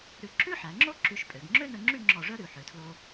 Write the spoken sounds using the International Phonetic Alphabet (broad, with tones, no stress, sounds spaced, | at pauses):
ɾ ʉ˧ ǁ ʉ˥ ħ æ˩˧ ŋ͡ǁ o˥ ǁ y˧ ʃ pʼ ø˩˧ ɡ ŋ͡ǁ ø˥ n ɵ˧ ŋ͡ǁ y˥˧ ŋ͡ǁ ɔ˧˩ ʐ œ˥ ɾ ʉ˩˧ ħ ø˩˧ tʰ l o˧